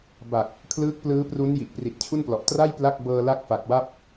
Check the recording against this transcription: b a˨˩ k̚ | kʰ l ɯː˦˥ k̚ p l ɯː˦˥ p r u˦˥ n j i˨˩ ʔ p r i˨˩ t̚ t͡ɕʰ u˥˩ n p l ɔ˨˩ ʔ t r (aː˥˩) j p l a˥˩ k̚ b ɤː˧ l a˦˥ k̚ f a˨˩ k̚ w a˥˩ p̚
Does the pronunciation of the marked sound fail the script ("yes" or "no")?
yes